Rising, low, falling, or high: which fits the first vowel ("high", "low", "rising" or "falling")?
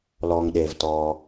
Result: low